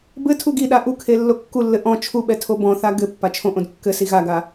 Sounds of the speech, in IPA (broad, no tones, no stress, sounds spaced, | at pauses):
b ɘ tʰ u ɡ i ɗ a ʔ u kʰ e lː o kː u lː ɘ ʔ ɔ̃ t͡ʃʰ u ɓ ɛ tʰ o b ɔ̃ θ a ɡ ɘ pː a t͡ʃʰ õ ʔ õ d kː ɘ s i ɣ a ɡ a